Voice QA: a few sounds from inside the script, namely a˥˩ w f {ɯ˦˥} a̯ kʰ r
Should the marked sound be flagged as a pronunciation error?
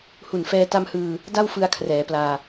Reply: yes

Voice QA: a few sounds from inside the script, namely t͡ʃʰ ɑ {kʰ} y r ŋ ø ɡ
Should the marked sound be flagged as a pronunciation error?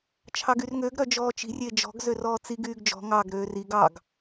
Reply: yes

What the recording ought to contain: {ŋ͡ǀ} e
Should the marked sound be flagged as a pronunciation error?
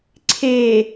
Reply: yes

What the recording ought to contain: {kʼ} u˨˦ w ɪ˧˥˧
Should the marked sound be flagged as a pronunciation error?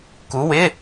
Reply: yes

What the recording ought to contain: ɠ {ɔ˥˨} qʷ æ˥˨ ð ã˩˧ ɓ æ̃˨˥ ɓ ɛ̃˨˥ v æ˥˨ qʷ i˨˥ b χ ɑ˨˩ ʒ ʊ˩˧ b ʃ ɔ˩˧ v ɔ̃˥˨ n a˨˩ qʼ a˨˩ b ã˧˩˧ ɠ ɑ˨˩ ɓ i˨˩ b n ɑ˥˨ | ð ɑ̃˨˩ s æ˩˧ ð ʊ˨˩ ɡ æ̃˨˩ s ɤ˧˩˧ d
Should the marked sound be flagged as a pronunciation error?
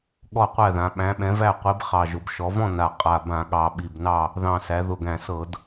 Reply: no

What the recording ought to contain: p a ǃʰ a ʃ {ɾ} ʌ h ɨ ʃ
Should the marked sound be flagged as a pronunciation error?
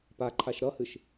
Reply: no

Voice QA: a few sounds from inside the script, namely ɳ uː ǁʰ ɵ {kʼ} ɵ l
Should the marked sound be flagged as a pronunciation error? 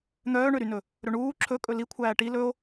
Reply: no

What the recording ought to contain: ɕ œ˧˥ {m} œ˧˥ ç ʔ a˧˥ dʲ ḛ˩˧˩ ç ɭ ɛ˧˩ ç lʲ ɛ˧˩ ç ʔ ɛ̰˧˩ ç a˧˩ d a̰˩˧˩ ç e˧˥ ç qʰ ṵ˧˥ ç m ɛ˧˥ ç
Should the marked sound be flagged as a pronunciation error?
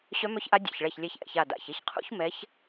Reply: no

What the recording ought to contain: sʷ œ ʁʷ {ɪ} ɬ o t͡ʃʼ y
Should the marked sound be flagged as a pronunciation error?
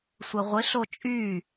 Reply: no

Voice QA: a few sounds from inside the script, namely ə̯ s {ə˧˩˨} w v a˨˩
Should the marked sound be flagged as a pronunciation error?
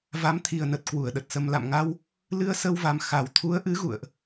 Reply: yes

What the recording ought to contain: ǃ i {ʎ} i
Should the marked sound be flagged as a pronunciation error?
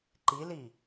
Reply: yes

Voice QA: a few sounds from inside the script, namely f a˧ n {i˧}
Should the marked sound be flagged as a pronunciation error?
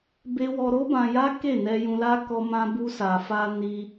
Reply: no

